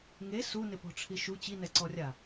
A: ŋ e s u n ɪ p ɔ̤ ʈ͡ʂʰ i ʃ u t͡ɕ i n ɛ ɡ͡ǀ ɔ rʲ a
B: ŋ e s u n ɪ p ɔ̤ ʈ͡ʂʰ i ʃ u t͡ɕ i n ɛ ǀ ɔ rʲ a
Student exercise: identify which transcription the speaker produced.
B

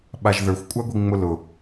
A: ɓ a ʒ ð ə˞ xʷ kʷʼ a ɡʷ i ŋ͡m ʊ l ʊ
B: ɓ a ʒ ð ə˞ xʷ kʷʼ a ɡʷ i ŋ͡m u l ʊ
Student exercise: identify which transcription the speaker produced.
A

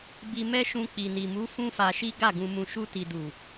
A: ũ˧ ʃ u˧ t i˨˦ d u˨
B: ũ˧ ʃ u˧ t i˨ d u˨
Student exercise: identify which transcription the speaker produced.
B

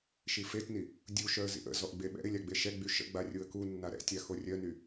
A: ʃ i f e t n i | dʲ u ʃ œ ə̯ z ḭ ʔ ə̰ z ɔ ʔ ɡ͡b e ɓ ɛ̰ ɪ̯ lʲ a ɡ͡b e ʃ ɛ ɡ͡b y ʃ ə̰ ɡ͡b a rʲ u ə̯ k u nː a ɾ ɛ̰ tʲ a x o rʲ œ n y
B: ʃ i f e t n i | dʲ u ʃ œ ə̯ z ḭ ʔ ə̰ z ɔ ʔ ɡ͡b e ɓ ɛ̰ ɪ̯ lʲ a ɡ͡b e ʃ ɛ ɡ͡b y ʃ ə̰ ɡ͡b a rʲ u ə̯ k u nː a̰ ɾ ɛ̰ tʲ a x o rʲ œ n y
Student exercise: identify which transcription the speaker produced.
A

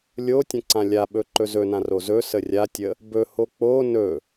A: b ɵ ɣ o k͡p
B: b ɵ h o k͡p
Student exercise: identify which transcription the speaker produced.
B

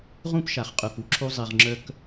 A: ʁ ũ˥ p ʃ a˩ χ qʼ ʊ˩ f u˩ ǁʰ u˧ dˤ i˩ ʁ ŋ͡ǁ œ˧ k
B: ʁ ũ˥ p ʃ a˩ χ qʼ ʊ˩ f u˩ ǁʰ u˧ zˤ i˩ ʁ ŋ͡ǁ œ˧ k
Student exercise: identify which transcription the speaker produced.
B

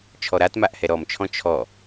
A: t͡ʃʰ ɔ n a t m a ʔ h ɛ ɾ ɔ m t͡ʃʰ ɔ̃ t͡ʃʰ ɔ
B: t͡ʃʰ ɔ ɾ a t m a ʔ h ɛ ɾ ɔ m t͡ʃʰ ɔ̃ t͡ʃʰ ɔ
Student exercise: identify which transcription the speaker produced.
B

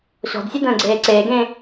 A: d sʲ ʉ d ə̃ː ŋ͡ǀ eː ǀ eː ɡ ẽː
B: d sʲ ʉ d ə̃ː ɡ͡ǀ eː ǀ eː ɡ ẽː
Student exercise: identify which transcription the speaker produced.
B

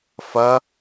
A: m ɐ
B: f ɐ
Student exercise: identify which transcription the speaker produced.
B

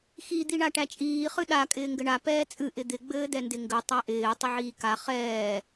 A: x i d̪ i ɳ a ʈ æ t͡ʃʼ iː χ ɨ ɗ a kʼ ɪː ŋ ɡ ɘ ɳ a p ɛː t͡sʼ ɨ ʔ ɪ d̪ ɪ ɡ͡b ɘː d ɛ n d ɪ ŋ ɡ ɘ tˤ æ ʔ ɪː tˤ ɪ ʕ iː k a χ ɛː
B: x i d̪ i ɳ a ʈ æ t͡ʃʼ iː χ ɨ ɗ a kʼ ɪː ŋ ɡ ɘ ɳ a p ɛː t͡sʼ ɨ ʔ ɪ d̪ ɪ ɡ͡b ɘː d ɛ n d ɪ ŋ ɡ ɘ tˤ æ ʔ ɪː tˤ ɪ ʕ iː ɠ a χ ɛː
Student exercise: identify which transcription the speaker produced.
A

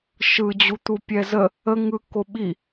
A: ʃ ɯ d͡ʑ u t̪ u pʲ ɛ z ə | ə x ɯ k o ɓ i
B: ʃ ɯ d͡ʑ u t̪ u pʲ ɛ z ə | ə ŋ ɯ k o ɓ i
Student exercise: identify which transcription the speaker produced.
B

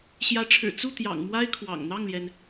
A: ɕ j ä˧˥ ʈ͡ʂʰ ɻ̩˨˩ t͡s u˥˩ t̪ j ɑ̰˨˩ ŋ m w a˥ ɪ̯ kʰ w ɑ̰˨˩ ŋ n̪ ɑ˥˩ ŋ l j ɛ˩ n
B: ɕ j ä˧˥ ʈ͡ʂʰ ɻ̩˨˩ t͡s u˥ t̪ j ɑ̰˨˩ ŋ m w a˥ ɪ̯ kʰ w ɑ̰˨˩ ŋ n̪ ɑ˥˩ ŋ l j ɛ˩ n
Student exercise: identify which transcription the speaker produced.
A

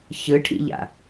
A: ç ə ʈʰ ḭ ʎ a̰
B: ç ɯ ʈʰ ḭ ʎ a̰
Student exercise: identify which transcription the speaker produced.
B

